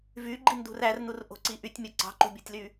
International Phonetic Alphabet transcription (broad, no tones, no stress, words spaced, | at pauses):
vyɡ͡ǃindṳr ærnurʔo̤ǀi ʔytʲmʲo ǀɑ̤ǃṳbʲotʲly